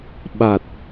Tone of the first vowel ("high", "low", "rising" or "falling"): low